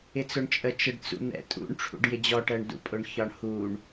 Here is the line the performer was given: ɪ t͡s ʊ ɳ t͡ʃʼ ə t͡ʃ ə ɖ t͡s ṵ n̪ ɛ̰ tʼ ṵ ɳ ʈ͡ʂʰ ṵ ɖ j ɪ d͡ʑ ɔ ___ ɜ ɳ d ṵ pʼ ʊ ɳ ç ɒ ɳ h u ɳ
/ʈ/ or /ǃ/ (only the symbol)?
ʈ